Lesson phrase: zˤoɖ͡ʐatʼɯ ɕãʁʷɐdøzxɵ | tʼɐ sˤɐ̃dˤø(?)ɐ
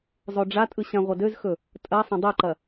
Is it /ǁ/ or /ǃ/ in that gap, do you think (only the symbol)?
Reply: ǃ